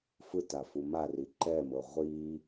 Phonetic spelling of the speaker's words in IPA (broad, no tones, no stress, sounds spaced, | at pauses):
f ɯ t a f u m a r i ǃ ɛ m ɤ ʁʷ i